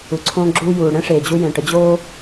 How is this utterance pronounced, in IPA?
u˩ ǀʰ õː˧ ɡ͡ǁ uː˧ j uː˩ ɽ ɛ̃˥ ʂ eː˩ d͡ʑ u˧ j ɛ̃˩ ʈ ə˧ d͡ʑ oː˥

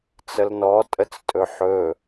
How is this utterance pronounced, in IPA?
t͡s ə l n ɔ tʼ ə t͡s tʼ ɵ ħ ɵ

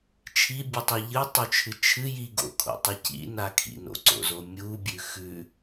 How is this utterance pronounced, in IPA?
t͡ʃʰ i bʲ ɨ tˤ e ʎ ɨ tˤ u t͡ʃʰ ɨ t͡ʃʰ ɨ j i ɡ o̰ kʰ o̰ tˤ ɨ c ḭ n a kʰ ḭ n o̰ ǀ o̰ z o mʲ u bʲ ʉ x ʉ

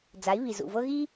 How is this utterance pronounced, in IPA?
d͡z a˨˦ i̯ β i˨ z ṵ˨ v ɤ˦ ɣ i˦

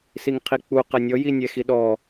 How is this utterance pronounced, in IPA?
s i ŋ qʰ i k͡p u q ɛ nʲ ɔ j i nʲ ɛ x i ɗ ɔ

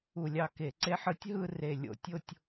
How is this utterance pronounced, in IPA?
u˧˩˧ lʲ ɑ˧˩ k e˧˩˧ ǀ e˥˧ ħ ɯ˦˥ tʲ ɦ ɯ˥˧ r e˧˩ lʲ o̰˧˩ tʲ o˥˧ tʲ

